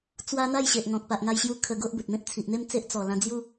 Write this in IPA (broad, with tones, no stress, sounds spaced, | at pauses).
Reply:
t͡s w a˦ n̪ a˥˧ j ɕ e˨ ʔ ŋ ɔ̃˨ k̚ p a˨ ʔ ŋ a˧ j ɕ j u˧ kʰ ə˧ ɡ o˦ ʔ b ə˨ t̚ m ẽ˦ p̚ t͡sʰ i˨ ʔ n̪ e˦ m t͡s e˦ ʔ t͡s ɔ˨˩ l ã˧ d͡z j u˦